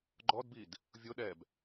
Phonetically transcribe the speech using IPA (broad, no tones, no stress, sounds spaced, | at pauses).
ɡ͡ǃ ɔ d b i d | vʲ ʊ ɗ ɛ b